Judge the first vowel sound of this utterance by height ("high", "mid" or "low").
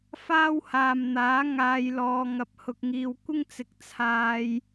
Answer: low